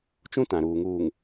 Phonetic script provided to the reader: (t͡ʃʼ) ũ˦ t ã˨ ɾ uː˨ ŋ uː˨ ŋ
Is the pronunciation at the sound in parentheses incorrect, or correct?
incorrect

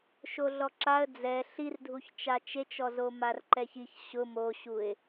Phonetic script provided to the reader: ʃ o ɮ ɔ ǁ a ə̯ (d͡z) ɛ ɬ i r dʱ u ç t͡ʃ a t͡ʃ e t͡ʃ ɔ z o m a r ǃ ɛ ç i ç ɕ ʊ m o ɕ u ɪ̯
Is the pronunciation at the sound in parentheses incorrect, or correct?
correct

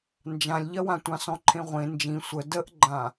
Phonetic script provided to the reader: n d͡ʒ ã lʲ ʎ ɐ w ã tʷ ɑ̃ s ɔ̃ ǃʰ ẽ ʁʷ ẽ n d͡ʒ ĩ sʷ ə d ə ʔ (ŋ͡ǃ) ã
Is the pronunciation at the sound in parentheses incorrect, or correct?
incorrect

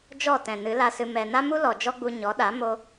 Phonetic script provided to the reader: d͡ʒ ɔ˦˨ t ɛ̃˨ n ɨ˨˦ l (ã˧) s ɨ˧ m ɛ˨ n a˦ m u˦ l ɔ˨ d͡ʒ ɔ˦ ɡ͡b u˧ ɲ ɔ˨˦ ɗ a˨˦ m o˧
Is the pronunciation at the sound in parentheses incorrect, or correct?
incorrect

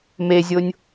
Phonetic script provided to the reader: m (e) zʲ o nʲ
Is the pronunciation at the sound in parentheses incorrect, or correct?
correct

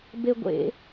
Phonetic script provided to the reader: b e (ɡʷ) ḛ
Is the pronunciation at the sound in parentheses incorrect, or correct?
correct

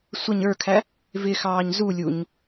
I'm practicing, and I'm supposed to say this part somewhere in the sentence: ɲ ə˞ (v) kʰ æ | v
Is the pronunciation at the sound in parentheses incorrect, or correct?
incorrect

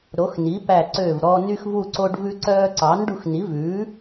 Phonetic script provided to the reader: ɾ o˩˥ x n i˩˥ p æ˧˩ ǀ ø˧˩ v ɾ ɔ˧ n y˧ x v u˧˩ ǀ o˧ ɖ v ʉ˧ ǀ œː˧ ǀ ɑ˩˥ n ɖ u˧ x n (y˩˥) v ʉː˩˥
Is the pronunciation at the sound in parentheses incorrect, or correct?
incorrect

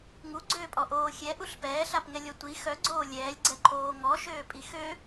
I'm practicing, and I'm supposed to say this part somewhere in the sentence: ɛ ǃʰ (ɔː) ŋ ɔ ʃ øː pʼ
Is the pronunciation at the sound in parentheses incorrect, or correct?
incorrect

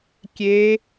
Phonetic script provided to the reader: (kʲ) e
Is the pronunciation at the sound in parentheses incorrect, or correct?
correct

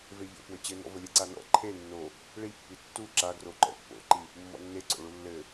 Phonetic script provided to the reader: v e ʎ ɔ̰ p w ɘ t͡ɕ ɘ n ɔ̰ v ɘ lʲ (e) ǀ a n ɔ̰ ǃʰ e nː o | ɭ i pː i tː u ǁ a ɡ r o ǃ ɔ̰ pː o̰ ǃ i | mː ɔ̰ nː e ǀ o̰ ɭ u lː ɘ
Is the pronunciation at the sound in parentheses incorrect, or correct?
incorrect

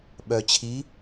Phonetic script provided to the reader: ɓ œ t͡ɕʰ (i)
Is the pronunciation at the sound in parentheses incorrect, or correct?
correct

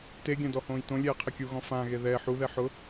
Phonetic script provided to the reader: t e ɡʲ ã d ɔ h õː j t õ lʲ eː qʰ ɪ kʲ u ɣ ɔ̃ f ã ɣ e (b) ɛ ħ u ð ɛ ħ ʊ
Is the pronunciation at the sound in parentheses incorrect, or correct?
incorrect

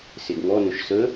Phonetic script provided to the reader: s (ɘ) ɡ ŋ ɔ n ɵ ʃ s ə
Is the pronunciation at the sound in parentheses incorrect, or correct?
incorrect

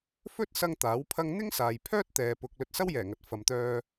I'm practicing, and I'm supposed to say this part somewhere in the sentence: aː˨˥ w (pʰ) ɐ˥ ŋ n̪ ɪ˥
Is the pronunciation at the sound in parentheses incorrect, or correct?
correct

